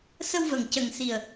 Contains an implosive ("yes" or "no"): no